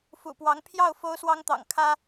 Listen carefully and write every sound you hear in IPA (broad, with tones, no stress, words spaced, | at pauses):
fṵ˨˩pwɑ˧˥ŋ pʰjɑ˥˩ʊ̯ fo˥ʊ̯swɑ˥ŋt̪ɑ̰˨˩ŋ kʰä˥